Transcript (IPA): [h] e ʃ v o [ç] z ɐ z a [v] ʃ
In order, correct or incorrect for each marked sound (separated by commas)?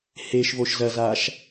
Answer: correct, incorrect, incorrect